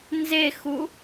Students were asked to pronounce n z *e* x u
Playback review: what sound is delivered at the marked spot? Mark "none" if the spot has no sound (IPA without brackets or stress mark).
e